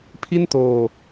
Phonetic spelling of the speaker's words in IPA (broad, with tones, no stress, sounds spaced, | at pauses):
pʰ i˥˩ n t oː˧